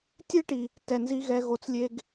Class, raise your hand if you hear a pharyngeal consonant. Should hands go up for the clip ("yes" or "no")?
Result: no